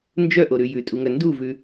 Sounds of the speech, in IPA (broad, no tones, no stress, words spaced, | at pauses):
nd͡ʒœʔoɾʉ jʉtʼuŋœ nduvʉ